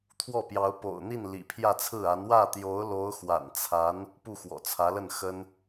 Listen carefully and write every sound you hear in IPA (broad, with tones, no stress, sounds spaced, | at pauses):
t̪ʰ w ɔ˥˩ p j ɑ˧˥ ʊ̯ p o̰˨˩ ʊ̯ n̪ i˥˩ n l ḭ˨˩ pʰ j ä˥˧ t͡sʰ ɹ̩˥˩ a˧˥ n w ä˥˩ t̪ j o˧˥ ʊ̯ l o˧˥ ʊ̯ x w a̰˨˩ n t͡sʰ a˧˥ n | p u˥˩ x w ɔ̰˨˩ t͡sʰ ä˧˥ l ə˥˩ n x ə˥ n